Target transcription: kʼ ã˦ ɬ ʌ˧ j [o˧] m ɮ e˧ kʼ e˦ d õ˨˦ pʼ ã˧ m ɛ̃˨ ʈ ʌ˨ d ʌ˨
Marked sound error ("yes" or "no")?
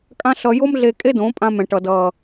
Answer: yes